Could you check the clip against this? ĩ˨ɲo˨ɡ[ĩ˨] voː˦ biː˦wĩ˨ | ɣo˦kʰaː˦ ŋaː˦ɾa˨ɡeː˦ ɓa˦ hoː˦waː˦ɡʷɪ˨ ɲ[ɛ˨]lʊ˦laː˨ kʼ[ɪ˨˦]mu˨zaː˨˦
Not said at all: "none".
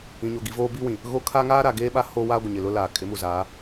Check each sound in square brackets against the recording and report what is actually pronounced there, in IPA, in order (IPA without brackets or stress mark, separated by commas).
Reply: i˨, ɪ˨, ɪ˨˦